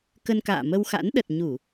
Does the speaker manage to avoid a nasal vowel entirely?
yes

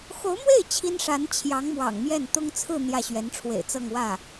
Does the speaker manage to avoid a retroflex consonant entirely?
no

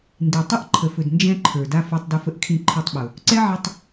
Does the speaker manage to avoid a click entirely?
no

